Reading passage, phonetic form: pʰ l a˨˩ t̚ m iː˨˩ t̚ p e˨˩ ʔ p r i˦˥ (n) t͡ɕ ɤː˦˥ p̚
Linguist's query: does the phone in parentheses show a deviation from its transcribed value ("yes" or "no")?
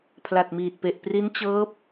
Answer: no